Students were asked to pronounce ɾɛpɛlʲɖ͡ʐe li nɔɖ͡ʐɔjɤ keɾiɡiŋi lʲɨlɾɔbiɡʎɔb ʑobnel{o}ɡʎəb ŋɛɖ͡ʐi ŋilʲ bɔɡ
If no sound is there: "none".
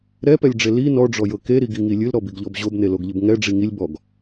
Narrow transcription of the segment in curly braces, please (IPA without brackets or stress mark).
o